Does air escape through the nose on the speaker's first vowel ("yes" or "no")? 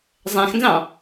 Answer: yes